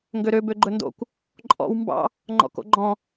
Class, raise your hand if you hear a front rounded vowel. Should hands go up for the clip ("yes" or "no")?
yes